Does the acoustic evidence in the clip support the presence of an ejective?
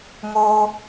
no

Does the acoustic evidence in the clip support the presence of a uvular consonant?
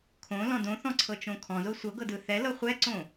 yes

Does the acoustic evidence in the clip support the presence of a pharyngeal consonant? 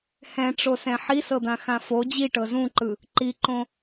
yes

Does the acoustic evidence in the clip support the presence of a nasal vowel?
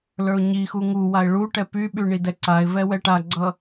no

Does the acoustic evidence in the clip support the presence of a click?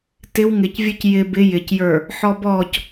no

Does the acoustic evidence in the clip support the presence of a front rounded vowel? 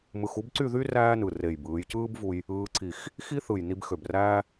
yes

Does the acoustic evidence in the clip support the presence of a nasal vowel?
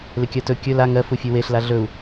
no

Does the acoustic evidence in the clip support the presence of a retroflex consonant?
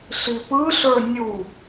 no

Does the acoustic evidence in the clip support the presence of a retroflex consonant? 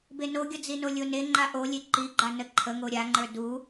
no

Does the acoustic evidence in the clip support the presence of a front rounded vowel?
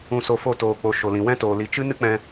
no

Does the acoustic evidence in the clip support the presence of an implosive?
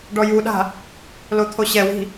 yes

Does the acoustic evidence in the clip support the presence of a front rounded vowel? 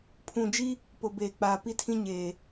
no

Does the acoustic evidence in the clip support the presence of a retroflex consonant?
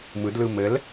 no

